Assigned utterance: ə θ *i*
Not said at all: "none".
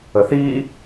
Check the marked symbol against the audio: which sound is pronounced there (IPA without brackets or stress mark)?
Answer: i